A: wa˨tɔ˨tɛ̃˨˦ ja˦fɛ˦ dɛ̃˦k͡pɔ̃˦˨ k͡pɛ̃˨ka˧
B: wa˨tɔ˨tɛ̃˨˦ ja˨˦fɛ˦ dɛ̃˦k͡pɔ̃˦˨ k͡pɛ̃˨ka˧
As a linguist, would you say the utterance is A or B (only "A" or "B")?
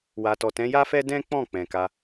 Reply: A